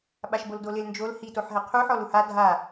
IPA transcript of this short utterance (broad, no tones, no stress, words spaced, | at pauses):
ɓaʃboldolɪl nd͡ʒol hitoħɦɛ qʰuħɔl uha dʱa